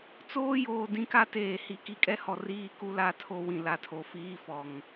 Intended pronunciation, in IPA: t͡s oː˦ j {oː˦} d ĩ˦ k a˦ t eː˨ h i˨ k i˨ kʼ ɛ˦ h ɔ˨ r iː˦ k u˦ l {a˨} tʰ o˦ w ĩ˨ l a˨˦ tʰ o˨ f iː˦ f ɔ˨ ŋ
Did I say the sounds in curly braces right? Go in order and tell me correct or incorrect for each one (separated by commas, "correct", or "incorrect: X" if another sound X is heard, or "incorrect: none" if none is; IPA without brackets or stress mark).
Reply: incorrect: oː˨, incorrect: a˦